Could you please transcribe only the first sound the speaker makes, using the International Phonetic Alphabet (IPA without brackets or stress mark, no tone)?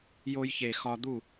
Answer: j